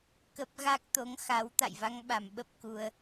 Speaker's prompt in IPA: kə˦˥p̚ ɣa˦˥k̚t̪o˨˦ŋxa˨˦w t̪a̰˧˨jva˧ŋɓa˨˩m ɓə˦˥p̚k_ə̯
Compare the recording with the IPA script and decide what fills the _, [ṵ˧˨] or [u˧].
u˧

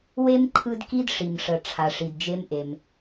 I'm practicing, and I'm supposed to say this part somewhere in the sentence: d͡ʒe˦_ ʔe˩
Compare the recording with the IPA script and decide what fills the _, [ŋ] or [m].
m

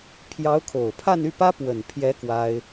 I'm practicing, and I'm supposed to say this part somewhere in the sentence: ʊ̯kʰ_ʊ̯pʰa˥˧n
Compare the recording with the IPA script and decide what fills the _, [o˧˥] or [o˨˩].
o˨˩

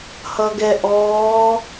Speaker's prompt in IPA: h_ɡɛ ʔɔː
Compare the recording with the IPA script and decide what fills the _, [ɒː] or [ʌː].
ʌː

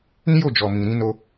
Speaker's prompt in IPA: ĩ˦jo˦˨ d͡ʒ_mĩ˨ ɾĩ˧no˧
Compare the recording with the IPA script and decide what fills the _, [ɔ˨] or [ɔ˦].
ɔ˨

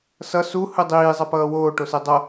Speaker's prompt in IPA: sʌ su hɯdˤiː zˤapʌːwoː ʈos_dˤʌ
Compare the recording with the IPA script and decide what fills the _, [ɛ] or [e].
e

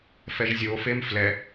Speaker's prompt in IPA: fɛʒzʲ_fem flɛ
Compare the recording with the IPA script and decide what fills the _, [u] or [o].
o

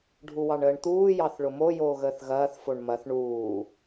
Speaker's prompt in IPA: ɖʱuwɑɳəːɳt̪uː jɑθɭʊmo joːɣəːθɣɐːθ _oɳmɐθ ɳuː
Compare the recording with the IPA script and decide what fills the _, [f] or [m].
f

